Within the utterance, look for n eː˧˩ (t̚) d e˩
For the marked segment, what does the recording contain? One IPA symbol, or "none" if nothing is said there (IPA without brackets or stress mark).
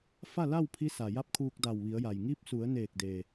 k̚